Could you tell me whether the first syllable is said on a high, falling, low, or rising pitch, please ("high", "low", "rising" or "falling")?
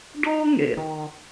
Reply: high